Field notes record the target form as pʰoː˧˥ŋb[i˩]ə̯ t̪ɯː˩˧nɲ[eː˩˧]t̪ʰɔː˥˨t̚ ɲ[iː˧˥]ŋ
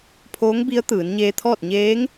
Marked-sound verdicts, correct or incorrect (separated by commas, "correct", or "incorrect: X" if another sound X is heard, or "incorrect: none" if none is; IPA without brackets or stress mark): incorrect: i˧˥, incorrect: eː˧, incorrect: eː˧˥